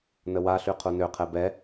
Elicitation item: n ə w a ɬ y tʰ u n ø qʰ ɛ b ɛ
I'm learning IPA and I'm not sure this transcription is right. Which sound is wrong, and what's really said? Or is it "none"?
tʰ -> qʰ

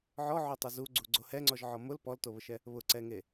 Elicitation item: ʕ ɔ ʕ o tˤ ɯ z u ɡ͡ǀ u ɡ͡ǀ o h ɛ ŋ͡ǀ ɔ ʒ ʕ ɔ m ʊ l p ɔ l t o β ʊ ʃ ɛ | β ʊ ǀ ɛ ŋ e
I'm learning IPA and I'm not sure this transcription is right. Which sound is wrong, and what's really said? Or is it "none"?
none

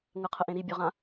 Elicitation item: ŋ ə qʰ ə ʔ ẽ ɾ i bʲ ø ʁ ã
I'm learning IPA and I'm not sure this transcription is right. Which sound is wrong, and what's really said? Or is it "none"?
none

